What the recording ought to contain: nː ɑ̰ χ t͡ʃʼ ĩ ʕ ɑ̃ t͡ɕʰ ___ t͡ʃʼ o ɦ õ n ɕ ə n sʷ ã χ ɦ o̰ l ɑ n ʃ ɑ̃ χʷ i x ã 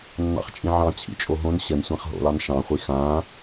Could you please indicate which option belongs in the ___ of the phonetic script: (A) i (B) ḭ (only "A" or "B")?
B